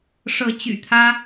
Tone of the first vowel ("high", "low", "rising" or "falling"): rising